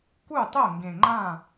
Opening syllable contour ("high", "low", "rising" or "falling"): falling